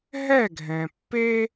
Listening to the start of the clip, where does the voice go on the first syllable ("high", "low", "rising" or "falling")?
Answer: falling